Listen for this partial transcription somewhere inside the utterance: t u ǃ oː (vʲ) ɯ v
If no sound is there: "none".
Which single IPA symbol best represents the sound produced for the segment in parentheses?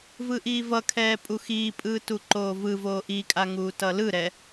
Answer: v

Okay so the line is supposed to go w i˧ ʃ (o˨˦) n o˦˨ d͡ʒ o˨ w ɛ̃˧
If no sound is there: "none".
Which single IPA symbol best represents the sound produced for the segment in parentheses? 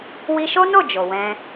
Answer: o˦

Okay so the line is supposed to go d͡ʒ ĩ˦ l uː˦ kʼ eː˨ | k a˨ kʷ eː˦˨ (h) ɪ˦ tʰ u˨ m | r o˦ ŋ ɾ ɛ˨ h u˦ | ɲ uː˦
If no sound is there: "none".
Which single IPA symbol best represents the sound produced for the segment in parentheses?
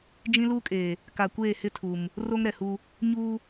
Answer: h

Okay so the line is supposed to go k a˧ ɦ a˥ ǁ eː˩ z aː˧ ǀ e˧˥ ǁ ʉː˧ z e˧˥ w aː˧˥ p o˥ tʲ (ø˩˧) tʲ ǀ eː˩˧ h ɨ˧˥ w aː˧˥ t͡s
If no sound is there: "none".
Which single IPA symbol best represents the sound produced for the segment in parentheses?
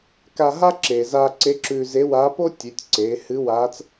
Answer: ʉ˩˧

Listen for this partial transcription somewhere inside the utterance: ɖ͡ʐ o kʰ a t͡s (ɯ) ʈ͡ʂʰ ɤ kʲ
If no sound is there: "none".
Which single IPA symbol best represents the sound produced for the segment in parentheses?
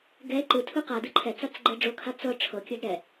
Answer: ɤ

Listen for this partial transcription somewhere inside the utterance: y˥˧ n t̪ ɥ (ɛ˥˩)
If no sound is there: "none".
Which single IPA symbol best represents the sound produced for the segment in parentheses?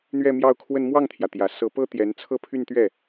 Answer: ɛ˥˩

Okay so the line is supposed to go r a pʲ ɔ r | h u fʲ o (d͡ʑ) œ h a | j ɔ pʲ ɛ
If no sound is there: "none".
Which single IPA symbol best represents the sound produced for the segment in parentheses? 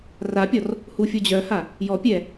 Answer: d͡ʑ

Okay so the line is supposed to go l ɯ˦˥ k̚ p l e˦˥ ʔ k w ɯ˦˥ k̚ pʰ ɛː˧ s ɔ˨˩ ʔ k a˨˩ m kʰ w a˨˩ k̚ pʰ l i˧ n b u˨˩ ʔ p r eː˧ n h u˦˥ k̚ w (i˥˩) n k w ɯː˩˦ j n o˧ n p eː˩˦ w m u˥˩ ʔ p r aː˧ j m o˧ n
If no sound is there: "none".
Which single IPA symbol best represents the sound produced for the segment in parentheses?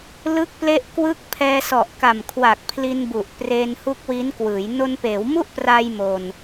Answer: i˦˥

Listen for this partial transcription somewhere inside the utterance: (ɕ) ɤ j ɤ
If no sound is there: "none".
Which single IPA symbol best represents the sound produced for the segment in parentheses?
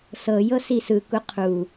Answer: s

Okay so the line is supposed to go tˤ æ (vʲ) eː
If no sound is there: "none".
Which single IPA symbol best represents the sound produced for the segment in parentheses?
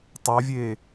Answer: vʲ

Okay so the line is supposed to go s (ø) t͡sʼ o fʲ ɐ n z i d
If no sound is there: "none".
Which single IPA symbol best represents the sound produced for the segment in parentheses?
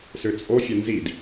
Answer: ø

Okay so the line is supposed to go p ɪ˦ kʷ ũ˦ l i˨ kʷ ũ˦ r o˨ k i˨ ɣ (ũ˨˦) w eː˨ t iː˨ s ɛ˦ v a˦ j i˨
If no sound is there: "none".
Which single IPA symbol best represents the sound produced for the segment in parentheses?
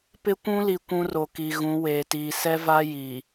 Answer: ũ˨˦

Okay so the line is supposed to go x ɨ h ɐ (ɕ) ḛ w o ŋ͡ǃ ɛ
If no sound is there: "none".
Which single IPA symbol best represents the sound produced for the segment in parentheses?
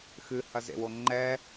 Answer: z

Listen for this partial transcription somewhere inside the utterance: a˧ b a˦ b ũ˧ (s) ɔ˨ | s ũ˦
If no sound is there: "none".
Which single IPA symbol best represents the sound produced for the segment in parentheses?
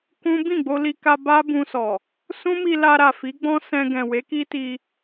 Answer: s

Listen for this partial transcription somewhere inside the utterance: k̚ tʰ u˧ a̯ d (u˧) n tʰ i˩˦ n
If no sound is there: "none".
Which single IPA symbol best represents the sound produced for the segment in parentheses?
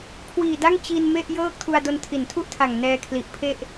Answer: o˧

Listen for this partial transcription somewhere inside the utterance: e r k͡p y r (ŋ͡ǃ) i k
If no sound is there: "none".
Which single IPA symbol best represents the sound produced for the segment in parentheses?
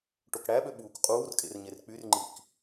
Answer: ŋ͡ǃ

